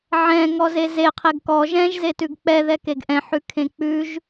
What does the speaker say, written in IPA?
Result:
ʕ ɛ̃ ŋ ɔ z e z e qʰ e ɡ k ɔ ʒ ɛ̃ ʒ z e t ʉ ɡ k͡p ɛ ð ɛ k e ɡ ʔ ɛ̃ ħ ʉ kʰ ẽ k͡p ʉ ʒ

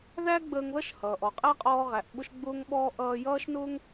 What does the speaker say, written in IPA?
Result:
ð æ˥ ɡ͡b əː˧ ŋ ð ʌ˥ ʃ h ʌː˩ ʔ ɔ˩ qʼ æ˥ qʼ ɔː˧ ʁ æ˩ ʔ ɓ ʊ˧ ʃ ɡ͡b ʊː˧ ŋ ɓ ɔː˧ ʔ ʌː˧ j ʌː˥ ʃ n ʊː˥ ŋ

